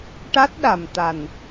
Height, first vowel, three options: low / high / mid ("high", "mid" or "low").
low